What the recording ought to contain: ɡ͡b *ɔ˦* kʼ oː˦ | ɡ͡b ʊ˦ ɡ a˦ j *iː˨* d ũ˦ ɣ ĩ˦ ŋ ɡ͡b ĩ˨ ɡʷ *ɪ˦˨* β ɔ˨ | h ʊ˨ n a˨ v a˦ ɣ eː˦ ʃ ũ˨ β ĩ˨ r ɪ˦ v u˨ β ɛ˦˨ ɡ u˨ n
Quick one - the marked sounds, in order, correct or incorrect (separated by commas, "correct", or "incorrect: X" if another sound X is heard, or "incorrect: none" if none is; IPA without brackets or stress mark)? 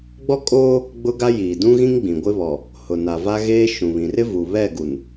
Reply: correct, correct, incorrect: ɪ˦